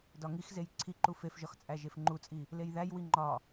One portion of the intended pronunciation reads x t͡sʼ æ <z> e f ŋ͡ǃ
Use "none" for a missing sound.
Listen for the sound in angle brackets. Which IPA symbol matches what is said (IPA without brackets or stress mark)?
ʒ